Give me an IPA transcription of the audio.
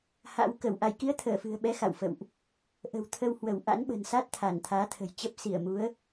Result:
h a̰˧˥ w k ə˧˩ w ʔ a˧˩ j k i˨˦ ə̯ t̪ʰ əː˧˩ f ɨ̤˨˩ ə̯ ɓ ɛ˨˦ x a̰˧˨ w f ə̰˧˨ w ʔ | ʔ ə̤˨˩ w t̪ʰ ə˧ w h w ə˧˩ w ʔ a̰˧˥ n ɓ ə̤˨˩ n s a˦˥ t̚ t̪ʰ a˧˩ n t̪ʰ aː˨˦ t̪ʰ ə̤˨˩ j t͡ɕ ə˦˥ p̚ s i˧˩ ə̯ m u˨˦ ə̯

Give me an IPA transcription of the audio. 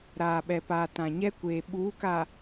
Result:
ɾ aː˨ ɓ ɛ˨ p aː˨ t ã˨ ɲ ɛ˦ kʷ eː˨ ɓ uː˨˦ k a˨

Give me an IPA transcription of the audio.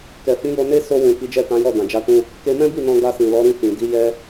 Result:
k ɛ˨ f ĩ˨˦ j o˧ n e˦ s o˧ w ũ˨ k i˨˦ d͡ʒ ɛ˦˨ t ã˨˦ j ɔ˦˨ d ã˨ d͡ʒ a˧ t ũ˧ | k e˧ m ɛ̃˦ b i˦˨ n ɔ̃˧ ɡ a˧ s ĩ˨ l ɔ˨˦ ɾ ĩ˦˨ f ĩ˨ d i˨˦ j ɛ˧

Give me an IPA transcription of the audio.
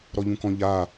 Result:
ɾ ɔ ʎ ũ k ɔ̃ ʎ a

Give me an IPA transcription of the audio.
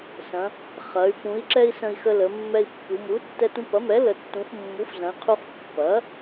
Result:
s ɐ̃˩˧ | χ ɐ˩˧ y̯ p ũ˩˧ i̯ ǁ ɛ˧ i̯ s ə̃˧ i̯ x ə˧ l ə˩˧ mː ɛ˧ i̯ pː u˩˧ m u˩˥ tː ɛ˧ t ũ˧ p ɐ˩˥ m ɛ˩˥ l ə˩˧ tː ũ˩˧ f mː u˩˥ f z ɐ̃˩˧ i̯ qʰ u˧ χ pː ɐ˩˥

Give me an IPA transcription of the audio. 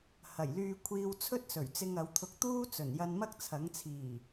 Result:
h ɐ˨˩ j l yː˧ kʷʰ iː˧ w t͡sʰ ɵ˥ t̚ s ɵ˨˩ ɥ t͡s ɪ˧ ŋ ɐ˨˧ w t̪ʰ ʊ˧ k̚ t̪ uː˥ t͡s ɵ˨˩ n j ɐ˧ n m ɐ˥ k̚ t͡sʰ ɐ˨˥ ŋ t͡sʰ iː˨˩

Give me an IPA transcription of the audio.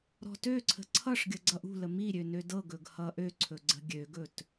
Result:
ɾ ɔ̤ t ø ǀʰ ə̤ ǀʰ ʌ ʂ ɡʲ ə ɡ͡ǀ ʌ ʔ ṳ l ə m i ɾʲ ø n ø d ɤ ɡ ɵ ɡ h ʌ ʔ ø ǀʰ ɵ ɡ͡ǀ ə̤ ɡʲ ø ɡ ɵ t

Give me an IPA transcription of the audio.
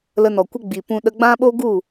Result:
l ə˧ n ɔ˨ kʷ ə˦ ɡ͡b i˨ p ũ˧ ɗ ə˧ ɡ͡b ã˦ ɓ o˦ ɡ u˦˨

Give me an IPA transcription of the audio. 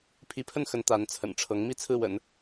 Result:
pʰ i˧˥ pʰ ə˥˩ n x ə˧˥ n t̪ a˧˥ n t͡sʰ ə̰˨˩ n ʈ͡ʂʰ ɤ˧˥ ŋ m i˥ t͡sʰ ɹ̩˥˩ w ə̰˨˩˦ n

